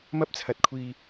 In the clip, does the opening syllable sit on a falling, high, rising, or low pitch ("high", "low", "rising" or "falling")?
high